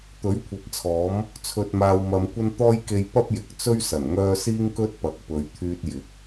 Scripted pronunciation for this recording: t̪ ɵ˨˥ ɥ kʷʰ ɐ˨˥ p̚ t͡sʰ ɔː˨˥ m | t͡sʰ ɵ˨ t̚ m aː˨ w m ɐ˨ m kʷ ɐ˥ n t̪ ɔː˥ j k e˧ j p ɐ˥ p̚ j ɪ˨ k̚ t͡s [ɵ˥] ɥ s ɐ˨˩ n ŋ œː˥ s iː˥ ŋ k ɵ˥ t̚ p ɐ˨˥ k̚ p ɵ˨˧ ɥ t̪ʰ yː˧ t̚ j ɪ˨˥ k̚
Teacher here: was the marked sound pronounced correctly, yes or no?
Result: yes